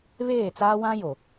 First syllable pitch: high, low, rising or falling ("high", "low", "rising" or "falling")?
falling